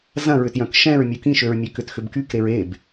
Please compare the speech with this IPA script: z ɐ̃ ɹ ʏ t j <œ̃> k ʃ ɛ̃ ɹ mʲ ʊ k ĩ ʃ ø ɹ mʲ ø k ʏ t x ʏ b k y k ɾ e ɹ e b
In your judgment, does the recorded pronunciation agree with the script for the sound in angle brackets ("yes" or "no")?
yes